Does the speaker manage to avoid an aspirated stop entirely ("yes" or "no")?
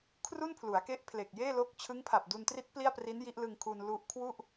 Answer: no